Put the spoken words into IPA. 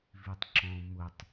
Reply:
v i tˤ ǁ ɔ̃ m ʊ tˤ

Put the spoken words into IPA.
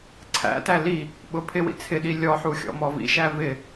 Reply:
ǀʰ æ̰ t æ l i | ɓ ʊ pʰ ɪ w ḭ t͡sʰ ɪ ɗ i lʲ ɔ ħ u xʲ ɔ̰ m ɔ v ḭ ʃ æ v ɪ

